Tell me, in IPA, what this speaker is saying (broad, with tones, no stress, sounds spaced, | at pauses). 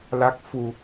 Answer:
l a˦˥ k̚ f u˧